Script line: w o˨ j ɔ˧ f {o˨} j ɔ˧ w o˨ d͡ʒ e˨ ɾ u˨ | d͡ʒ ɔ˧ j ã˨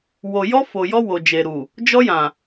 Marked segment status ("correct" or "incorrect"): correct